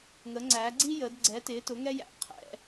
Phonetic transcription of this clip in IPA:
ŋə˨˥ŋ͡ǀæː˨˥ɡ͡ǀi˥jəː˨˥d ɡ͡ǀɛ˨˥tɪː˨˥tʊ˨˥ ŋɛ˥jæ̰˨˥qʰɛ̰˨˥

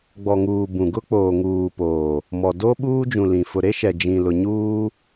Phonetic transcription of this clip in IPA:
ɡ͡bɔ˨ŋuː˨ bũ˨ɡʊ˦ k͡poː˨ŋuː˨poː˨ | mɔ˨ do˦ ɓuː˦d͡ʒũ˨lĩ˨ fʊ˨ɾe˦ʃɛ˨ d͡ʒĩ˨lʊ˨ɲuː˦

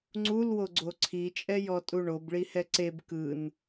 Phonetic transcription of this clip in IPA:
ŋ͡ǀulwoɡ͡ǀo ǀʰit͡ʃʼɛjɔtʼu ɳobɭihɛ ǀeb kɯn

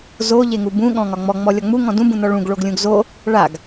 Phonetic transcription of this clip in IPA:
zo ʎeŋubũ ɠɔ̃ŋɒŋ͡mɔ ŋ͡mɔlʲɒŋ͡mu ŋɔ̃dũ bũnɔɭũɡ ɭoɡlʲũɡzo | ɭaɡ

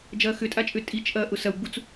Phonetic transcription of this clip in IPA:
d͡ʒɐːxʏtʼat͡ʃʼʏ tʼit͡ʃ ʔɐːʔʊsɐwɡ͡but͡s

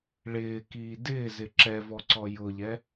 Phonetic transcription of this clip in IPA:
ɭɪːkiː dɪːzɪ ǁɛvɔǀɔ jʊʎɛ

